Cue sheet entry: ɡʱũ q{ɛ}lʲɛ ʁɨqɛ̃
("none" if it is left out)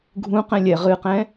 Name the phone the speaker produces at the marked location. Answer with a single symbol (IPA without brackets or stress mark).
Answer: ɛ̃